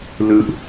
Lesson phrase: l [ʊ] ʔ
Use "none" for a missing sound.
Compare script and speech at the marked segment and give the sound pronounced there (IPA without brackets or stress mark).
ɯ